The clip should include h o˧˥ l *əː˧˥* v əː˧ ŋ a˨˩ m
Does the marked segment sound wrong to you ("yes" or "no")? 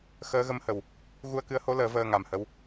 yes